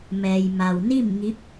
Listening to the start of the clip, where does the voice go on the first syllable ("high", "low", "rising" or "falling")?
low